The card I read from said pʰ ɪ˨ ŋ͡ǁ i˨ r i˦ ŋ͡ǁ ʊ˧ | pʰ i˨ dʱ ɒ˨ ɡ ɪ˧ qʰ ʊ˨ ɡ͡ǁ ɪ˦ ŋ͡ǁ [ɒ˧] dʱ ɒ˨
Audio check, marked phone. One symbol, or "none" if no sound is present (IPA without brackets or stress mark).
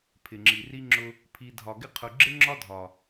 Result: ɒ˦